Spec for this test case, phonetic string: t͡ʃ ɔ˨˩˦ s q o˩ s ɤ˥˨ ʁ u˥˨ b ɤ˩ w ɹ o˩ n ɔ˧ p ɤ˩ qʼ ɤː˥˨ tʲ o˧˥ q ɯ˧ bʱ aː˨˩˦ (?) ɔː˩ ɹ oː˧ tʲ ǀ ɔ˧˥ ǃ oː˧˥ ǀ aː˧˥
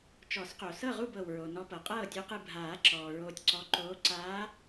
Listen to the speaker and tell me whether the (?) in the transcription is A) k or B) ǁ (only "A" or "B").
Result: B